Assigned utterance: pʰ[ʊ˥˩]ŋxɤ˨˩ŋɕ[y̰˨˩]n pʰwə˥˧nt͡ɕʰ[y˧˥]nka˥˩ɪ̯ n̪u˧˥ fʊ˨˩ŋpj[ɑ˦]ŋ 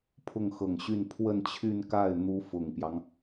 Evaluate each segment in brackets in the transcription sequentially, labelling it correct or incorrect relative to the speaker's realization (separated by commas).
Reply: correct, incorrect, incorrect, correct